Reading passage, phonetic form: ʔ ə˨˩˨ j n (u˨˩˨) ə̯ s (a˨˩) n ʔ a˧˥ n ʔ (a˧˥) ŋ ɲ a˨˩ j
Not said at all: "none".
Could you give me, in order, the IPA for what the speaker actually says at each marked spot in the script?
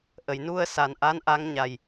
u˧, a˨˩, a˧˥

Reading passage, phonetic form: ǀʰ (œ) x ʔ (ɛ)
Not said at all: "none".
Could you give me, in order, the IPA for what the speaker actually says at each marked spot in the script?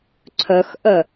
œ, œ

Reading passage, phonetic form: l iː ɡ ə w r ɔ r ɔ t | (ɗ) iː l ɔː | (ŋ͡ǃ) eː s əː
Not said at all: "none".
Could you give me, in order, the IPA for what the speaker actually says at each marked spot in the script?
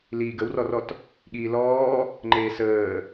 ɠ, ŋ͡ǃ

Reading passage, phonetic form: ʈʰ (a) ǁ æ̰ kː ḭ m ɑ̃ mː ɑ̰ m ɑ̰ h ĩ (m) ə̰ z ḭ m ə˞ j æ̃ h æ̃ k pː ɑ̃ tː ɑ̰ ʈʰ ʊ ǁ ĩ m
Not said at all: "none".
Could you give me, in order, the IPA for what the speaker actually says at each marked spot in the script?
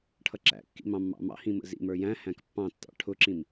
ʌ, m

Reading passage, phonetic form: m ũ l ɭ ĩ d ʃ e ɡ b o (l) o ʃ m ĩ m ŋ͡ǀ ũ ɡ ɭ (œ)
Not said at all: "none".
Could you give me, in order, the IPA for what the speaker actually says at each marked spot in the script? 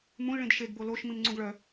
l, œ

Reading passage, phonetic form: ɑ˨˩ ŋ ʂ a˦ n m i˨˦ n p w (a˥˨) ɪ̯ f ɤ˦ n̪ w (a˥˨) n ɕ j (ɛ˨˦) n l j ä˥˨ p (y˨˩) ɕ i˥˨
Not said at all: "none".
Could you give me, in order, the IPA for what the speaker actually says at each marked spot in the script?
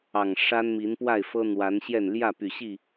a˥˨, a˨˦, ɛ˥˨, y˨˩

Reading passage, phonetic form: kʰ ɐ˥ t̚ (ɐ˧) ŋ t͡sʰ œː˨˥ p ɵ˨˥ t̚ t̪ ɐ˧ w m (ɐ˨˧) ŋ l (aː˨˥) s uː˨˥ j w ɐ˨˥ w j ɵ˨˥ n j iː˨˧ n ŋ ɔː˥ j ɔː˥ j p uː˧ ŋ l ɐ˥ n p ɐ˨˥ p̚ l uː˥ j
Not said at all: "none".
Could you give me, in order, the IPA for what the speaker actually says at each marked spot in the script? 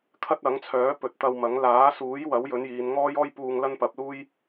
ɐ˨˥, ɐ˨˥, aː˨˥

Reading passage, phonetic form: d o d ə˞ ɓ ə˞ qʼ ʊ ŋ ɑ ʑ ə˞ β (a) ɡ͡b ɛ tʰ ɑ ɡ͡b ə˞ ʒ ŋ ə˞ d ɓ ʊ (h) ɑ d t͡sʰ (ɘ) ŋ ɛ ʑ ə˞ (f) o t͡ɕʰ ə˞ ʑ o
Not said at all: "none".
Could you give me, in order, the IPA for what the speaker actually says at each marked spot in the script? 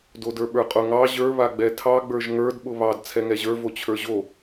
a, β, ɛ, v

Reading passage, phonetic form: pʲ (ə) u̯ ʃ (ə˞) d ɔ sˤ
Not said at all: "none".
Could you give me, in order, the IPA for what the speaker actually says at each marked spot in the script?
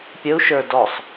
ə, ə˞

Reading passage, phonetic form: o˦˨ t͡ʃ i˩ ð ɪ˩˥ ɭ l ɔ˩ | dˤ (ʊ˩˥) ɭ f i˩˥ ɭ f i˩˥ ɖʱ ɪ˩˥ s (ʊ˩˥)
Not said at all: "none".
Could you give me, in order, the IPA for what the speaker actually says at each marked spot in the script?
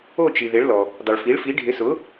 ʊ˩, ʊ˩˥

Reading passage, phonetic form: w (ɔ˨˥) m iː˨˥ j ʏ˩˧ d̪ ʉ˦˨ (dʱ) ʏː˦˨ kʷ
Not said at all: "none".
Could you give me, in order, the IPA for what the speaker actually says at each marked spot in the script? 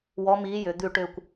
ɔ˨˥, ʈ

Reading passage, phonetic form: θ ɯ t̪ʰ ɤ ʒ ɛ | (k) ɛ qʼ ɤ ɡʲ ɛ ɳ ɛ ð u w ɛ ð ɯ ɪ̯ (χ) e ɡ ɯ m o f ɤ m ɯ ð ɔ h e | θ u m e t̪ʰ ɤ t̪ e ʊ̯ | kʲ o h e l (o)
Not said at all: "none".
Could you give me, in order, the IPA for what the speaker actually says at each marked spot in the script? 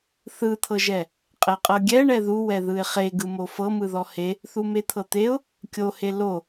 qʼ, χ, o

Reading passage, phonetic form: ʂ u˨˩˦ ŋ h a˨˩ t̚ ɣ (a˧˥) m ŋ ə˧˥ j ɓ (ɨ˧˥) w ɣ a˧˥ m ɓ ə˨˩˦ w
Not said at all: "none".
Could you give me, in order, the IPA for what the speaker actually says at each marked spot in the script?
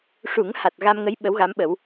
a˧, ə˧˥

